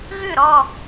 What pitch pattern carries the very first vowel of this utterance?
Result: falling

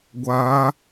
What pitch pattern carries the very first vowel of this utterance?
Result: rising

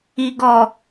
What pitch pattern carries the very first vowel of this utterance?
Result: low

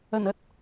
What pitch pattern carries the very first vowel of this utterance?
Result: low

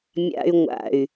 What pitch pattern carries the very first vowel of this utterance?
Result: high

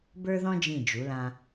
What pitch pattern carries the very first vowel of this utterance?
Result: high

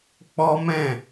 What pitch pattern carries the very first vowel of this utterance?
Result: high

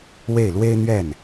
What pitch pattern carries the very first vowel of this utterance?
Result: falling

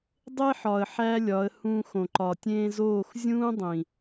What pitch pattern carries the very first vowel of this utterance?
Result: high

